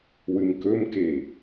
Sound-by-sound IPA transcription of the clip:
w ɨ m k ɵ m k e

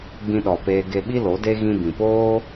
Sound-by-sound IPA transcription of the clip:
ɡ͡b ĩ˧ ɗ ɔ˨ p eː˧ ɡ e˧ ɓ i˦ l o˨˦ d e˦ ɣ ĩ˧ b ĩ˨ p oː˦

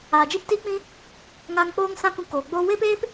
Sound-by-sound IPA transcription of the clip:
aː˨ d͡ʒ i˦ p t iː˦ k͡p ĩ˦ | ŋ a˦ ŋ k͡p oː˦ ŋ s ã˦ k ũ˧ k oː˨ ɡ͡b oː˦ w e˦ p eː˦ p

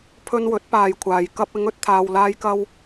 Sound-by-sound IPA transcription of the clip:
pʰ ɵ˧ n w ɵ˨˥ t̚ p aː˨ j kʷʰ aː˨ j k ɐ˧ p̚ ɪ˨˧ ŋ ɵ˨ t̚ t̪ʰ aː˨ w l aː˧ j k ɐ˧ w

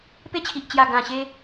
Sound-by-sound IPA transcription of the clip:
p e˦ t͡ɕʰ i˨ ʔ t͡ɕ j a˨˩ ɡ ã˨˩ ɕ e˧

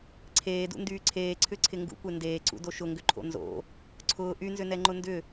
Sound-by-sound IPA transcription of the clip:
ǀʰ eː d ṵ n d yː ǀʰ eː ǀʰ ʏ ǀʰ ɪ ŋ ɡ ṵ kʷ e n d eː ǀ ṵ d o ʃ ʊ ŋ ɡ ʏ ǃʰ o̰ n z o̰ | ǀʰ ʊː ʔ y n z ʏ n ɛ ŋ͡ǃ ʊ n d ʏ

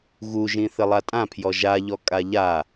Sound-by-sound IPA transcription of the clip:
ɣ u ʒ ĩ θ ɘ lˠ a tʼ ã pʰ j ɔ ʒ a ʎ ɔ kʼ a ʎ a

